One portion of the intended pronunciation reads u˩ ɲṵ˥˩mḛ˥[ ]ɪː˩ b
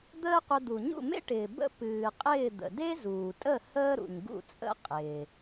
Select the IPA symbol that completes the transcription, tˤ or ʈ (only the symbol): ʈ